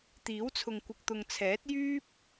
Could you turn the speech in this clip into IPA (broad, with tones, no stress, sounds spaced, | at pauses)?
t̪ iː˨˥ w t͡sʰ ʊ˨ ŋ kʷ ɪ˨ k̚ t̪ ʊ˨ ŋ t͡sʰ ɛː˨˥ t̚ j yː˥ p̚